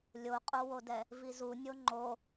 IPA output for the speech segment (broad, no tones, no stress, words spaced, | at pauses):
lʲoqʼowodɛ | vizu nʲoŋ͡ǃo